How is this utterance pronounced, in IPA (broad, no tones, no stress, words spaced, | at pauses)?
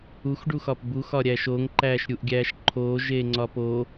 uxɖuxɒp buxɒ ɾʲæʃoːŋǃæːʃ ɾʲuʔɡʲæːʃ ǃʰoːʒeː ŋ͡ǀɒpo